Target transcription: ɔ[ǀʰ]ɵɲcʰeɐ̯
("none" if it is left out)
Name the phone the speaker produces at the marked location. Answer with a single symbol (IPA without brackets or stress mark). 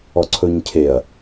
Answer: ǀʰ